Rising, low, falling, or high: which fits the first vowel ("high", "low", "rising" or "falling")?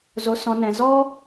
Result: low